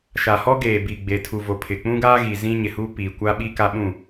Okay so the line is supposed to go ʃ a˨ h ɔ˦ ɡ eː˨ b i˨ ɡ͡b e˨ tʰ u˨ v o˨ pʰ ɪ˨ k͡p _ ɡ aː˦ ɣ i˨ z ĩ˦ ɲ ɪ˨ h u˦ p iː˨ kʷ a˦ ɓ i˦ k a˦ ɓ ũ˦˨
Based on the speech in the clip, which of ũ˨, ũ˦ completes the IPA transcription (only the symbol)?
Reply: ũ˦